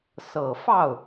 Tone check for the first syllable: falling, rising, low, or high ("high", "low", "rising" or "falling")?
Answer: low